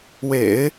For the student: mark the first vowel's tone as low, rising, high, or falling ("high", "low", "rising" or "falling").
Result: low